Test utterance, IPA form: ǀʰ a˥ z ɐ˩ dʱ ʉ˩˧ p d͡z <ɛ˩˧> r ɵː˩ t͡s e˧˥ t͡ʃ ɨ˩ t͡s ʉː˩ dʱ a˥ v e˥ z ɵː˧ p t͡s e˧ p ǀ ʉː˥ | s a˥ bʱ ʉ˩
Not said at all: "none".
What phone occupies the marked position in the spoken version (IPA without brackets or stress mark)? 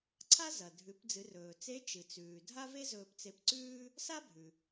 ɨ˩˧